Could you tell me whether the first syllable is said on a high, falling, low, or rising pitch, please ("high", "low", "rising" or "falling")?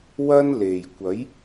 high